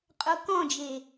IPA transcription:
qʼokɔ̃d͡ʒe

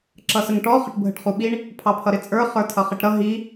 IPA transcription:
ǁʌsəŋʈɔ χəʈbʱəʈχuɓiɳ | pʰɑpʰʌɾɪt͡sʼə˞ χə˞tʰʌχɪʈɾʌ ɦi

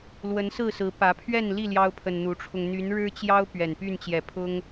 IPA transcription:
lwə˨˦nsɹ̩˥˨ sɹ̩˨˦pä˨˦ pʰɥɛ˥˨nli˥˨ ljɑ˦ʊ̯pʰə˨nn̪u˨˦ʈ͡ʂʰʊ˧ŋ n̪y˨˦nɻɻ̩˦t͡ɕjɑ˦ʊ̯ pɥɛ˨˩npy˥˨nt͡ɕjɛ˨˩pʰʊ˦ŋ

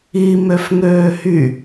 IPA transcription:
i møfŋøːhy

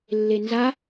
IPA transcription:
lːenza

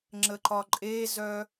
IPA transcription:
ŋ͡ǁəǃɒǃʼezœ

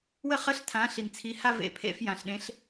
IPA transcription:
wə˥˧ χə˧˥˧ɬtʰã˨˦ ɬi˨nt͡sʰi˨˦ha˥˧ vḛ˧˥˧pʰḛ˥˧f jã˨ɬɗẽ˨˦ɬ

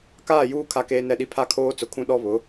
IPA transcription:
kaː˦˨juː˦ kʰa˦keː˦nɛ˦˨ɗi˦ pʰa˦kʰoː˦t͡sʊ˨kʰũ˦ ɗɔ˦βʊ˨˦

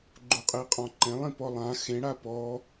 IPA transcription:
ɡ͡ǃuqʼiqʼɔ̃ǃẽlˠ ĩpɔlˠã xẽ ɽapɔ

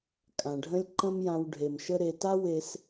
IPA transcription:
kʼã˩ɖʱə̃˥lʲ ǃə̃˥mjã˧w ɖʱe˩m ʃə˥ɾe˧ ta˥we˧s

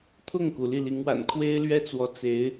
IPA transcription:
t̪ʰʊ˥˩ŋku˩ li˥˩li˧˥ŋwa̰˨˩n kʰwe˥ɪ̯lɥɛ˥t͡swɔ˧˥ t͡se˧˥ɪ̯

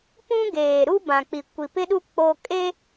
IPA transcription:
pũ˦ ɡeː˨ ɾu˦bã˨k͡pi˨ kʷi˨pɪ˦ɗu˦ k͡po˦ kʼe˦

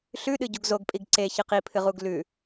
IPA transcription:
ɬʉɗɨ ɟuɡzoɡpʼiɡ ǀe çɨqipʰɨʁuɡ lʉ

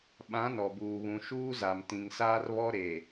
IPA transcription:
ɓã˨˦nɔ˨buː˨βũ˨ ʃuː˦za˨m tĩ˨ŋsaː˦rβɔ˦ ɾe˨

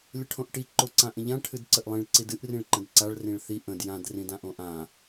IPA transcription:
lʲəʈʰõʔʈi ǃoǀãʔə̃ʎã ʈʰɨdǀəʔlˠĩɭ ǀidɨʔ rĩɭǃə̃dǀaɭ rĩɭθi ʔə̃d jãd rĩdãʔõʔã

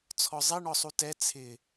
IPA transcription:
t͡sʰɔzˤeɳɔsˤu tɛ t͡sʰɪ

